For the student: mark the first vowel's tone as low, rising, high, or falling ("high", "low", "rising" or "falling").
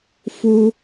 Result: high